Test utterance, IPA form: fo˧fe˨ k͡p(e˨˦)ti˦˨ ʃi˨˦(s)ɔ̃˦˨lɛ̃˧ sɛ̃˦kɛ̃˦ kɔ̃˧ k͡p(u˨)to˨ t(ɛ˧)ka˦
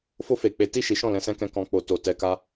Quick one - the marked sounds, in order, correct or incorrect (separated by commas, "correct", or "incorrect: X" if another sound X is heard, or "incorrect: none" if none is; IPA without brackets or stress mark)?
correct, incorrect: ʃ, incorrect: o˨, correct